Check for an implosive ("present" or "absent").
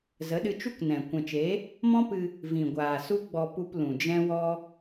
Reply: present